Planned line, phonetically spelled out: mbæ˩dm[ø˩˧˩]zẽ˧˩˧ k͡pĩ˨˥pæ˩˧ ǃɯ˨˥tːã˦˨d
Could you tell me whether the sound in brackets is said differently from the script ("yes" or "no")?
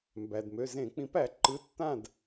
no